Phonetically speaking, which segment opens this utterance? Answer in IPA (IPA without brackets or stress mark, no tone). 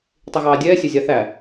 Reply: tˤ